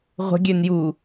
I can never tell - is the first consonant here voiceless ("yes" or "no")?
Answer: no